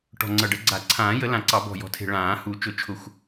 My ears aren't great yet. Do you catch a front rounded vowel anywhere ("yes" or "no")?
no